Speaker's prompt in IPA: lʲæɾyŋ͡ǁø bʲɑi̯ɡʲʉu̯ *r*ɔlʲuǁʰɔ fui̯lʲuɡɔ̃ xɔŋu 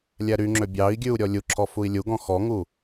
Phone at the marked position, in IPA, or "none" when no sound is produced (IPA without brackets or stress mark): ɾʲ